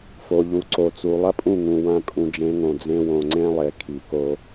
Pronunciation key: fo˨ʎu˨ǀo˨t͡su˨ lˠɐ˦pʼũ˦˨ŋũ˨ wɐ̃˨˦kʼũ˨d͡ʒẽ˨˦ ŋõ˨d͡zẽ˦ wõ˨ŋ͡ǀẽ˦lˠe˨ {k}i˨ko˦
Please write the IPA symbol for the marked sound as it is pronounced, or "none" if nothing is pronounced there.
kʰ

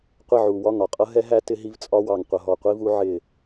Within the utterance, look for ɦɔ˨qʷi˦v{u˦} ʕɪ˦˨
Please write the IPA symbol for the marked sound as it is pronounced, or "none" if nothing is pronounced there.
u˦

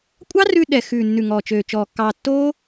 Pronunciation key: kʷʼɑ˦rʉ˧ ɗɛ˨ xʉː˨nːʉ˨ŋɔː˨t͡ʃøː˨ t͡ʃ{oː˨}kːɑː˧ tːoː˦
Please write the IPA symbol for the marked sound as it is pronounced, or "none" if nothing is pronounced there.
ɔː˨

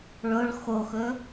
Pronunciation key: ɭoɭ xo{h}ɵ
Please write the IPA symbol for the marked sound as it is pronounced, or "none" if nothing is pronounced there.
x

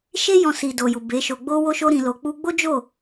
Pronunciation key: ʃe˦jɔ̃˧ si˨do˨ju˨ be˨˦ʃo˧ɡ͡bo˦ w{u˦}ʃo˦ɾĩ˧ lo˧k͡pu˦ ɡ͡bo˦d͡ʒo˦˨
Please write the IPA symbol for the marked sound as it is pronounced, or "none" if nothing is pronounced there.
o˦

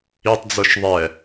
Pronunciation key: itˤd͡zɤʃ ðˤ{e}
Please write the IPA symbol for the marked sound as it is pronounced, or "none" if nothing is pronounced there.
ɛ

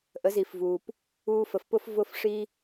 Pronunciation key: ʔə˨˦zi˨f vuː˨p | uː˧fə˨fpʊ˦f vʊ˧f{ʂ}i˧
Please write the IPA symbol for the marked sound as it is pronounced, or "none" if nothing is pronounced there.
ʂ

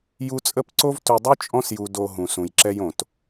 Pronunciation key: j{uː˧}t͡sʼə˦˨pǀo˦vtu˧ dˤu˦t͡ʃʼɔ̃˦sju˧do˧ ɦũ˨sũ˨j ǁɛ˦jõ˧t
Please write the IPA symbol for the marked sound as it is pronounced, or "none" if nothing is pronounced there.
u˧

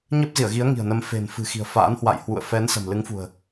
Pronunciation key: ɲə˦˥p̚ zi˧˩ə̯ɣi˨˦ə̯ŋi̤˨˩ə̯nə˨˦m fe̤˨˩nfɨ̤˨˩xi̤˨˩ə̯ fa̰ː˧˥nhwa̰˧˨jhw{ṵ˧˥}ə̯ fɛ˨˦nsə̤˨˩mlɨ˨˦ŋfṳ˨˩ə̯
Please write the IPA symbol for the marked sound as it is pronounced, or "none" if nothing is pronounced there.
ṵ˧˨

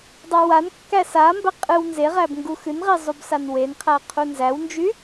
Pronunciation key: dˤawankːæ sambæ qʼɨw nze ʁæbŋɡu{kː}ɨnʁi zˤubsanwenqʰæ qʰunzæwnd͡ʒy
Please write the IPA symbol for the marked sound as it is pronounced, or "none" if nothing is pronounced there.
x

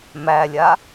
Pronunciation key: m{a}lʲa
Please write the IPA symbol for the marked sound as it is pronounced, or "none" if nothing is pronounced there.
æ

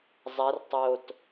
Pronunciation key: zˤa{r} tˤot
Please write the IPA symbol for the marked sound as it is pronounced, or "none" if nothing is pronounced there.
r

